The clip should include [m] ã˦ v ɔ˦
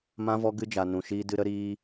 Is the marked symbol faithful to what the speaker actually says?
yes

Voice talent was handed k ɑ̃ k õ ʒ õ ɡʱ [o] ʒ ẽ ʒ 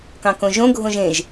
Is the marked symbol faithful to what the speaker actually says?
no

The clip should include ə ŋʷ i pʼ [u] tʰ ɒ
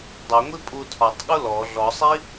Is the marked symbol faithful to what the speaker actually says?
yes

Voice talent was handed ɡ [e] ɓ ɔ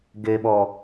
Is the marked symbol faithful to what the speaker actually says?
yes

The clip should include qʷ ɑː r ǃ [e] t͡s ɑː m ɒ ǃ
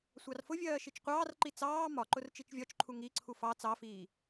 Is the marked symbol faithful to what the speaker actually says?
no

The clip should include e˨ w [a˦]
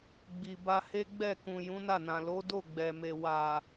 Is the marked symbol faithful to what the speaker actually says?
no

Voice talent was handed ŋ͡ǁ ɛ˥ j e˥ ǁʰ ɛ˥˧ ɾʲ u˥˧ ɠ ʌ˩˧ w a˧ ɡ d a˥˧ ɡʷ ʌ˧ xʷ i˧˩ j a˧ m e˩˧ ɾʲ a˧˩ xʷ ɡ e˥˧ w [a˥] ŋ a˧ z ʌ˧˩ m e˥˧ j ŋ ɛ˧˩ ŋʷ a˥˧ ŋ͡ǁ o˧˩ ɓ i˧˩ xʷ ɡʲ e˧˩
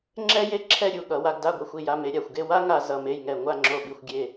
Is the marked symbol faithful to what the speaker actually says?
yes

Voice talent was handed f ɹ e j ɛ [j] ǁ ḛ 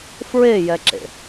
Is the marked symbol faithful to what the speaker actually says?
no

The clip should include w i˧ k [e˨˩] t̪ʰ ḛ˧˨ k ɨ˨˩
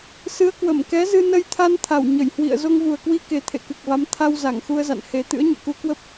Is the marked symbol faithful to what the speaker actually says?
yes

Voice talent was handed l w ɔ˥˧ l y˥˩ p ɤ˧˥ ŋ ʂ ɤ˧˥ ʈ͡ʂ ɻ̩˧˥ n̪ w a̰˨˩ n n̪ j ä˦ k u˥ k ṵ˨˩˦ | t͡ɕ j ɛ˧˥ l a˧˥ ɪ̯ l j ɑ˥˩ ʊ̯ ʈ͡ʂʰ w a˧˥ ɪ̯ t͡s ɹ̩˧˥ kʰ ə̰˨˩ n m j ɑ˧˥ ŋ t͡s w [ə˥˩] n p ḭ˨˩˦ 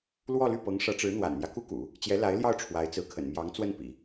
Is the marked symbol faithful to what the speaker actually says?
yes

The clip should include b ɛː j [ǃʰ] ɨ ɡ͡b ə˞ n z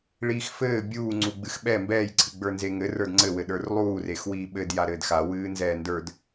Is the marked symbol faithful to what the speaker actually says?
no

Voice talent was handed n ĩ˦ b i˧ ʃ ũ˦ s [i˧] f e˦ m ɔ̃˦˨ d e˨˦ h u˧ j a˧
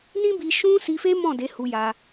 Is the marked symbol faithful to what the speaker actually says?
yes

